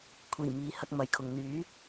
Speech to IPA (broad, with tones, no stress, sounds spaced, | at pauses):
kʷʰ iː˨˩ m iː˨˧ h ɐ˨ k̚ m ɐ˨ j kʰ ʊ˨ ŋ n̪ yː˨˥